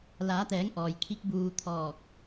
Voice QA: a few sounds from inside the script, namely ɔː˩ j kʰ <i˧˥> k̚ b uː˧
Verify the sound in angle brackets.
correct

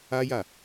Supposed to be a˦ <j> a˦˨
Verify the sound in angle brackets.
correct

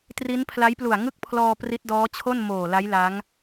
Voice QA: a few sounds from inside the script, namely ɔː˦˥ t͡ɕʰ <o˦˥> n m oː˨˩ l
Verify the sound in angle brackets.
incorrect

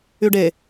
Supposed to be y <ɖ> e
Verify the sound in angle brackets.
correct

